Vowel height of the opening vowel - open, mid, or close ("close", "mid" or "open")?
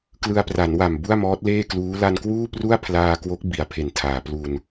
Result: close